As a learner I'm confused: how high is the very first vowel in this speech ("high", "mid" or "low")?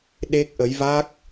mid